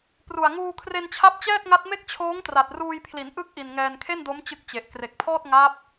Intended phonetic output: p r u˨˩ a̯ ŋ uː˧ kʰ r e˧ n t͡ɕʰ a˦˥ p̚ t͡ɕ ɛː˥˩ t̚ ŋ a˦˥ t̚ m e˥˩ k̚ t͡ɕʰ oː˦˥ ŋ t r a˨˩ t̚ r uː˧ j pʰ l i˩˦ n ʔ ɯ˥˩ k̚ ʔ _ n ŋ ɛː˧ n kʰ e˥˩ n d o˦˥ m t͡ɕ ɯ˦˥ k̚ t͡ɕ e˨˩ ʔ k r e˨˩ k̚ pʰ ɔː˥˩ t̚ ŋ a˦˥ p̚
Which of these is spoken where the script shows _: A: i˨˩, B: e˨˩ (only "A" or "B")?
A